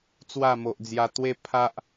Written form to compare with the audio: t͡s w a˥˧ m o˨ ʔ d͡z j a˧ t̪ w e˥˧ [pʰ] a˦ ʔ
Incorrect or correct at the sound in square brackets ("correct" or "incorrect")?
correct